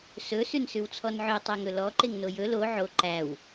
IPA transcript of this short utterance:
s ɵ s ʉ n s ʉ w t͡sʰ ɔ n ʕ ø tˤ ɛ ŋ ɵ l ɔ ǃ e ŋ n o j ɵ l o ʕ o ǃ æ w

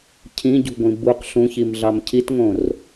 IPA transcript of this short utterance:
cʰ ĩ ɟ ṳ ɡʷ ĩ b u q ɬ ũ ç i m ɮ ɑ m cʰ i t ŋ õ r

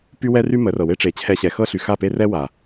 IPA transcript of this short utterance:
p y˦ w ɛ˦ r y˦ m ə˨˦ r ɤ˨ w e˦ ʈ͡ʂ e˨˦ t͡ɕʰ ɛ˧ ɕ ɛ˨ x ɤ˦ ɬ y˨ x a˦˨ p e˦ r ɛ˦ w a˨

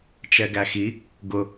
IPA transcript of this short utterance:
t͡ʃ ɛ ɡ æ x i | ɡ ʊ

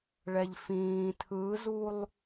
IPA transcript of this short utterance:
ɭ ɛ ʎ f ĩː tʰ ɯ z u lˠ

